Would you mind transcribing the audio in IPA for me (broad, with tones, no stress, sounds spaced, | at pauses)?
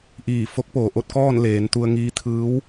ʔ iː˧˩ f o˧˥ k̚ p oː˩ ʔ o˥˨ t̚ k ɔː˥˨ n l eː˩˧ n t̪ u˧ ə̯ ŋ iː˧˥ t̪ʰ ɯː˧˥ w